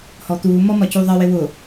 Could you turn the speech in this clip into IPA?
hɔt̪uːmɔ mɒcuðˤɜwɪ wʊ

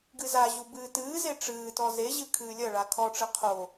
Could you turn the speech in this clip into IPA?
ɡɨzaʑu bɨːtɨːze ʈ͡ʂɨːtɔ zeʑɨ kʰɨːlʲɐɭa kʰɔʈ͡ʂɘ qʰo

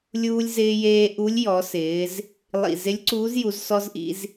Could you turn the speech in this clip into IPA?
lʲuː˧lʲzɪː˧jeː˧ ʔu˧˥lʲjɔ˩˧sɪː˩˧z | lˠḭ˨˩ zɪ˧˥lʲǀuː˧˥zju˩˧z sɔ˧zʔḭ˩˧z

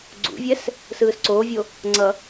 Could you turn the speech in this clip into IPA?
ɡ͡ǀṵvʲɛs | sɯːsǀoːvʲo | ŋ͡ǀʌ

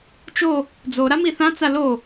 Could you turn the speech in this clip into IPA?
t͡ʃo | d͡zoɾa miθãt͡sa lo

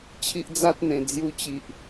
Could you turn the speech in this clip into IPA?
t͡ɕʰi˦ʔd͡za˦t̚n̪ẽ˨˩ d͡zju˧t͡ɕi˨ʔ

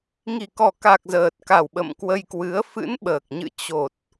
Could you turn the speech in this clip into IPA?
ŋi˨˩kɔ˨˩ka˨˩k̚ zəː˨˩t̚ka˨˩w ɓə̰˧˨mkwə˧jkwɨ˨˦ə̯ fɨ̰˧˥nɓəː˨˩k̚ɲɨ̰˧˨ t͡ɕo˨˩t̚

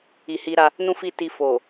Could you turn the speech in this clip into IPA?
i˨hi˧ɾa˧ | nũ˦fi˦˨ti˧ fo˨

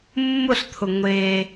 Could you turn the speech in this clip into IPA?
mːʊɬt̪ʰʊ ŋʷe

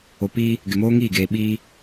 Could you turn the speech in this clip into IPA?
o˨pi˦ | ɡɪ˨moː˦ŋiː˦˨ ɡeː˨ɓiː˦

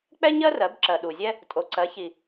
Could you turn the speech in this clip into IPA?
k͡pɛ˥ɲɜ˥rɜ˨˦b ǁɜ˨ɗu˨zʲɛ˥ | tʼo˨˦ǀɜ˨˦çi˨

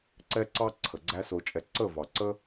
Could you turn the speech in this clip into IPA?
ǀɛ˦ǀɑ˦ ǀʰə˨ɡ͡ǀæ˦so˧t͡ʃʼɛ˧ ǀə˦˨vɑ˨ǀə˦

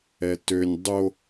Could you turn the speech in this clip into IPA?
ɛtønʲ dˤo

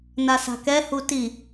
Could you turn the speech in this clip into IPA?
nasa̤kɛ huti

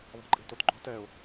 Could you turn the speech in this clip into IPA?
ðˤɛ̤ǃʼe̤totɡ͡ǃo̤t ɛʊ̯

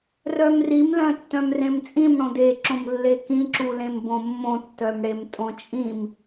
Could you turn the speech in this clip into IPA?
rœmrimlœ̃ tːœ̃mrẽmt͡sʼĩm ɽõdeǁõm lːekĩǁulẽm bõmːõtːœmɽem tʼõt͡ʃʼĩm

